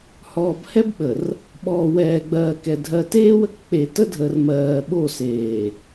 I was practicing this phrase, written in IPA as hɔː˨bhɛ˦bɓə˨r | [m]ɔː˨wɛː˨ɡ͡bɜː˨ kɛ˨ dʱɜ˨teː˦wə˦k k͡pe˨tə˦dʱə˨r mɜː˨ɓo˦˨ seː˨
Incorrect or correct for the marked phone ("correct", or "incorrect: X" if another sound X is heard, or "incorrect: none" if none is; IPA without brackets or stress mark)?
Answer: incorrect: ɓ